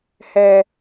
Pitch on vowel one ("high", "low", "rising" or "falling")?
high